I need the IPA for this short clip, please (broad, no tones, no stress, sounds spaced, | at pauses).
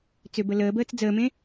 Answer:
t͡s ʏ b ə l əː b əː t͡s d͡z əː m ẽ